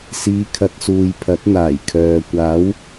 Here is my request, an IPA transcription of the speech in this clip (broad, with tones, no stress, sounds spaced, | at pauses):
s iː˨˧ kʰ ɐ˨ t̚ s uː˨ j pʰ ɐ˨˥ t̚ n̪ aː˨˩ j kʰ œː˨ kʷ aː˨˥ w